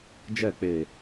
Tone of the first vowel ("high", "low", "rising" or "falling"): falling